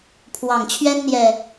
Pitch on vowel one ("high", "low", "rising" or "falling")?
low